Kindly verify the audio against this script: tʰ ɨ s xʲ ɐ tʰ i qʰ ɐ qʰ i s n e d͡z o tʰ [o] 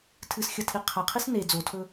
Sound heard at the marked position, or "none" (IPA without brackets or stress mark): ɵ